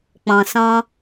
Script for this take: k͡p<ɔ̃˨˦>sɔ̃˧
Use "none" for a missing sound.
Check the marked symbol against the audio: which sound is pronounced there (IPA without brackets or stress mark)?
ɔ̃˨